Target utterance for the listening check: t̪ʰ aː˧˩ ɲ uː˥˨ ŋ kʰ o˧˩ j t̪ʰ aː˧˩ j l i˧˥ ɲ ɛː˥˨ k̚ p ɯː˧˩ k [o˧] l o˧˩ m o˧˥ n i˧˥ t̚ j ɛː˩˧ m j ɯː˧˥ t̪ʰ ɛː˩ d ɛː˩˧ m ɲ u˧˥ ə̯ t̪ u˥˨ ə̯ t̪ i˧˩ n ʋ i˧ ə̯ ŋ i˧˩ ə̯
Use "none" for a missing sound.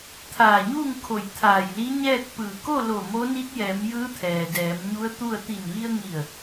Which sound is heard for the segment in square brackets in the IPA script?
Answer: o˥˨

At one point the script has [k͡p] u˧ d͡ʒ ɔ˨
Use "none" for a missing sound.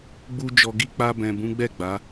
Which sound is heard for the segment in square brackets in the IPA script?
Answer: ɡ͡b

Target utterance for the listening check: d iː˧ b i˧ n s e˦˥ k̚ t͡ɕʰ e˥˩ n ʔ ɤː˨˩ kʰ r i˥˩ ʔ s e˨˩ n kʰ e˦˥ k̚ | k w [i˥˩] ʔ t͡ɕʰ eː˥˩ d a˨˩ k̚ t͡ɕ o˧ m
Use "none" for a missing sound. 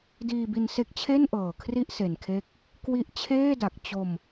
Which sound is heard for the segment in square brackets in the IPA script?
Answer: i˦˥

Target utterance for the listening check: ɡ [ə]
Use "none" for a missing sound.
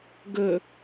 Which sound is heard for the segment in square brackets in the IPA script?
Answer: ə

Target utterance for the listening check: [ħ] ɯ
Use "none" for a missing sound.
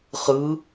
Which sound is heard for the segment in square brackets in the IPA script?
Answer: χ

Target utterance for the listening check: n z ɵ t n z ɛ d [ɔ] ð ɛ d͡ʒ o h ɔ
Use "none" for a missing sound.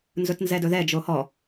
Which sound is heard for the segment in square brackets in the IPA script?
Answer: ɵ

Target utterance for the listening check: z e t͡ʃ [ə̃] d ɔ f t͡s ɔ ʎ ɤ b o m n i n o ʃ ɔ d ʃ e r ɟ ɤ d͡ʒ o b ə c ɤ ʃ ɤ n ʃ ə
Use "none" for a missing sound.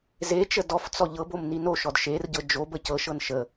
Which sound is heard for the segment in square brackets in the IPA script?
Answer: ə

